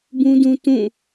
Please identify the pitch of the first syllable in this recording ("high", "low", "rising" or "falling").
high